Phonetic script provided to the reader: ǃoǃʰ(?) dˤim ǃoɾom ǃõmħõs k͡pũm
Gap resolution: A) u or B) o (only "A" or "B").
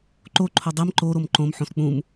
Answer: B